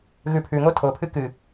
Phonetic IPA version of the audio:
ɣʉpʰʉŋo tʰopʰɨ kɨ

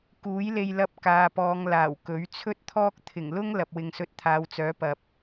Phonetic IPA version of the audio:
kuː˨˥jle˧jlɐ˧p̚ kaː˨pɔː˨˧ŋ laː˨˩wkɵ˨˥ɥ t͡sʰɵ˥t̚t̪ʰɔː˥k̚ t̪ʰɪ˨˩ŋlʊ˥ŋ lɐ˨p̚wɪ˨ŋsɵ˧t̚ t̪ʰaː˨˧wt͡sœː˨˥pɐ˨p̚

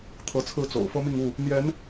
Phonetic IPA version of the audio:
t̪ʰɤ˨˦t͡sʰɹ̩˥˨t͡so̰˨˩ʊ̯ fɤ˦mi˥˨ŋu˥˨ | n̪jɛ˨˦n

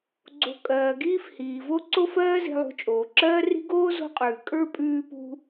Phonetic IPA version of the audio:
ɡ͡ǀo̤˨ kʼɜː˩ɡiː˦fhiː˩vo˦ ǀo˦fɜː˦zi̤˨ lˠṳ˨t͡ʃʼoː˩ǁɜː˦ri̤˦ ɡoː˥zo̤˦qʼʉː˩ kʼə˞˥ pʼʉː˦pṳ˦

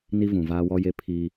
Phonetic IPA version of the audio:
ni˦vũ˨vaː˦ wɔ˦je˦pʰiː˦

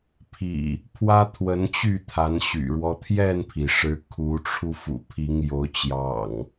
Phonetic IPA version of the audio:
pʰḭ˨˩ | pʰwä˦t̪ʰwə˨˦n t͡ɕy˥˨t̪ʰa˨˦nɕy̰˨˩ɻwɔ˦ t̪ʰjɛ˥˨npʰi˩ʂɻ̩˨˦ kʰu˨˦ʈ͡ʂʰu˧ fṵ˨˩pʰi˨˦ŋ jo˨˦ʊ̯t͡ɕjɑ̰˨˩ŋ

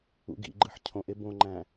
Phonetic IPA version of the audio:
ṵɡḭɡ͡ǃɯħ cʰõʔe bõŋ͡ǃæ̃

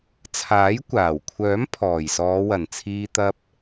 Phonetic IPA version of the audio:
t͡sʰaː˨˥jkʷaː˨˩wkʷʰœː˨˥m pʰɔː˨˩jsɔː˨˧wɐ˨˩nt͡sʰiː˧ t̪ɐ˧p̚

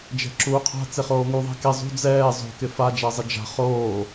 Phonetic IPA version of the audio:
d͡ʒɛ̤ǁuːqʰa̤ t͡seχoːŋuðˤe̤ ke zˤṳ d͡zɛː zˤo̤ kɪfad͡ʒazˤɪ d͡ʒa̤ χoː

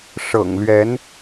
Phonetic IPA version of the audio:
ʂɤ̰˨˩ŋlɥɛ˨˦n

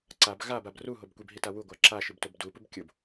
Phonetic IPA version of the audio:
ǀab ɣabab ruɦob kʷibɦita wuɡʷa ǁaʃibtob dupub kʲob

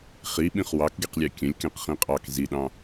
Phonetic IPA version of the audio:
χiɓĩχ wɑkɡeqlʲɑ kʲə̃lʲkẽqχĩ qʼɑk ziɗɑ̃

